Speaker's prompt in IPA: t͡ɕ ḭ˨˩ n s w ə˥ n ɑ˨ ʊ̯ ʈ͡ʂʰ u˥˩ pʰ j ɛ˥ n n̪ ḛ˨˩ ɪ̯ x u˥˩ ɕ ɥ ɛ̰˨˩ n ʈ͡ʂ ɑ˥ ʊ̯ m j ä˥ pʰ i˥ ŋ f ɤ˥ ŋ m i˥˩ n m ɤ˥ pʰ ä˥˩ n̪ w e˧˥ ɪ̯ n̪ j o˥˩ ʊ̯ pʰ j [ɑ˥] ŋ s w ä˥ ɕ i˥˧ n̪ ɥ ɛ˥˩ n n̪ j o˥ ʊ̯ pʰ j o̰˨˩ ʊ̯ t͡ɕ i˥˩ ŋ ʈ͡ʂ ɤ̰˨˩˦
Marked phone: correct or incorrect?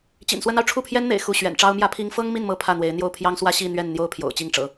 correct